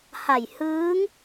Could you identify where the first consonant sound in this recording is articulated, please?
glottal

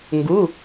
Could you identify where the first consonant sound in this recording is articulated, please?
velar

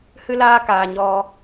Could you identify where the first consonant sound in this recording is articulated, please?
glottal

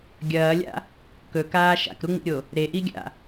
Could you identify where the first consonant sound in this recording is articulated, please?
velar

